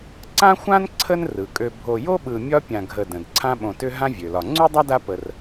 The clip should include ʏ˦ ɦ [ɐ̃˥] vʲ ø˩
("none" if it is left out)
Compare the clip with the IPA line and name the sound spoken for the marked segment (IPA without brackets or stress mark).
ã˥